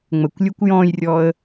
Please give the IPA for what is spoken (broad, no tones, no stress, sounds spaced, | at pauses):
ŋ͡m ə kʷ lʲ u kʷ j ɔ̃ j rʲ ɔ ə̯